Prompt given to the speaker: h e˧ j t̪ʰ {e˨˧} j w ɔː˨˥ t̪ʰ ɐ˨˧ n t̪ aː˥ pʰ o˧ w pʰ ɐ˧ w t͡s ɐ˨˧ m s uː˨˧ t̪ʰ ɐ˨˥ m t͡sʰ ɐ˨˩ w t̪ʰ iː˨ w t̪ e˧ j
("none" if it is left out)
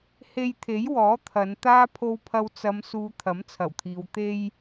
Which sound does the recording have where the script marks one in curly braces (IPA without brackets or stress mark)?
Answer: e˨˥